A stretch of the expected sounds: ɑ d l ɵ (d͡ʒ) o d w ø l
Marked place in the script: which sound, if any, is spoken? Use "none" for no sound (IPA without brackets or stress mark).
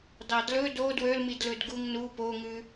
d